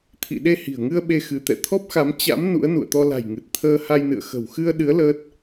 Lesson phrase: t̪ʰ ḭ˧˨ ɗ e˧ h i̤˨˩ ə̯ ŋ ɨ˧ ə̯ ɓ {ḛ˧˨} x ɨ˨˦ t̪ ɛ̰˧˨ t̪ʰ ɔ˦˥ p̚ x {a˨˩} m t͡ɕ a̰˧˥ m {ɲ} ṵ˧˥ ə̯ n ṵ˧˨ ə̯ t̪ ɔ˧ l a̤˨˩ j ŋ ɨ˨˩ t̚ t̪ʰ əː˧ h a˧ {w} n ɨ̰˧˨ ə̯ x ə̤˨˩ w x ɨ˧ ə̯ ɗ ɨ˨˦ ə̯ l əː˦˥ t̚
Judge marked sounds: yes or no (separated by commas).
no, no, no, no